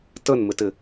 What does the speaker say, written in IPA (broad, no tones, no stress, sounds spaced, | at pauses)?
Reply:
t ə n m ɪ t ɪ